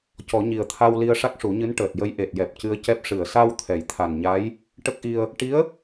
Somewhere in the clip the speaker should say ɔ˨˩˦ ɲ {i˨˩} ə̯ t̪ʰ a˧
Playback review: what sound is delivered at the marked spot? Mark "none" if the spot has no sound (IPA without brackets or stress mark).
i˨˩